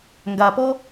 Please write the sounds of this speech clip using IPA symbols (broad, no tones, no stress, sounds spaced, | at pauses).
ŋ ɡ a p ɔ